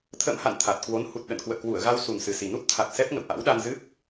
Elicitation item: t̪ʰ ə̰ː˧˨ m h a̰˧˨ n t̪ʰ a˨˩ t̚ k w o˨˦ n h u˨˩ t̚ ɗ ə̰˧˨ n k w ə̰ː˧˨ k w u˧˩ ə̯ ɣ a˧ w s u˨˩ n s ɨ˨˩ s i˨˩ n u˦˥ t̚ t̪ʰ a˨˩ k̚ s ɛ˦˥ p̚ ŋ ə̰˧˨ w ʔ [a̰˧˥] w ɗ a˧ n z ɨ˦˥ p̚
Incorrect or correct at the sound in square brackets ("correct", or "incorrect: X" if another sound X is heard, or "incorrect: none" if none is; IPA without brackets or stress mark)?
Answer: correct